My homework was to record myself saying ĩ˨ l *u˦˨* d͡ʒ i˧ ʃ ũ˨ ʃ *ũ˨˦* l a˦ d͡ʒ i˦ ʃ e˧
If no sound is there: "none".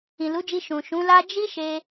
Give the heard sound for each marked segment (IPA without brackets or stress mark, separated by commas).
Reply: u˨˦, ũ˨˦